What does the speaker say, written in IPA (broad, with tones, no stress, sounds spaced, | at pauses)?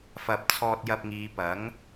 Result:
f ɐ˨ p̚ t͡sʰ ɔː˧ t̚ j ɐ˧ p̚ ŋ iː˨˧ p ɐ˨˥ ŋ